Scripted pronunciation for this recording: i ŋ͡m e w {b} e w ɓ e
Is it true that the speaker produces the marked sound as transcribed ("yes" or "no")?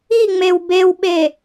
yes